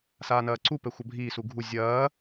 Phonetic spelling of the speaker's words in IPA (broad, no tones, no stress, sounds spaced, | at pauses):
s aː n ɐː ǀ u p ɛ xʷ ɐ bʱ iː s u ɡʱ u zʲ ɐː